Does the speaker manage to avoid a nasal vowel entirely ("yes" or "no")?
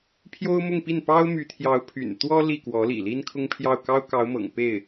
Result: yes